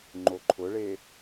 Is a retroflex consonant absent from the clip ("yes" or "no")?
no